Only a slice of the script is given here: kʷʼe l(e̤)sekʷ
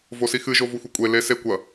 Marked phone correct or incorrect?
incorrect